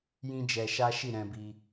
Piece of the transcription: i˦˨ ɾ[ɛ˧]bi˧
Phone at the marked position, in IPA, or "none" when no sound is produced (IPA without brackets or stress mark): ɛ̃˧